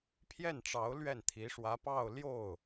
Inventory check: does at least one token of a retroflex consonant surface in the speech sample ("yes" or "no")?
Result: yes